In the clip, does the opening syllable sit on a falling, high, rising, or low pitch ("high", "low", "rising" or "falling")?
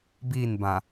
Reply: falling